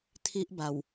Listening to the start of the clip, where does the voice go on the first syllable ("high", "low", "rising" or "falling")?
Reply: high